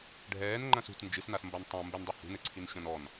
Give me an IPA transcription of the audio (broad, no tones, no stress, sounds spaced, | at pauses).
ɖʱ ɛː n ŋ͡ǃ ɐ̃ s ṳ t n d͡ʒ ɨ s n a s m b ɐ n tˤ ɐ̃ m b ɘ n dˤ e h ṳ n ɘ ǀʰ i n ɕ ɐ̃ n ɔ n